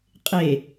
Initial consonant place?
uvular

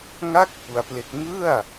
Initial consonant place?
velar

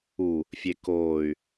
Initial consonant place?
labial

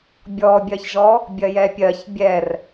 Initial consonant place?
labial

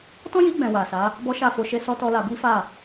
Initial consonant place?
alveolar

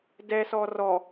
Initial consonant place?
alveolar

